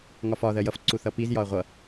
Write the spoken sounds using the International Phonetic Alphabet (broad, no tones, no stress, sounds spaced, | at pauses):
ŋ ɒ f ɒ ð ɜ j ʌ f ǀ u θ ʌ p i z j ɒ ɐ̯ ʁʷ ʌ